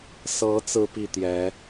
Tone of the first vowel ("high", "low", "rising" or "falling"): rising